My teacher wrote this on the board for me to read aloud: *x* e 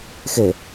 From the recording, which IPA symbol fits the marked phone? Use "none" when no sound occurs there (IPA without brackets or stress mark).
x